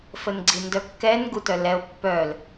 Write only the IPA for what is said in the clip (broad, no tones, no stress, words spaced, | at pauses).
fənɡ͡ǀindœkːɛn ɡutœlɛo̯ pːœl